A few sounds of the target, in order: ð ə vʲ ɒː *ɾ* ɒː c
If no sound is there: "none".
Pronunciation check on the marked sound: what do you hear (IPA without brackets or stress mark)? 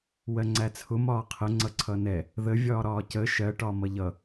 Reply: ɾ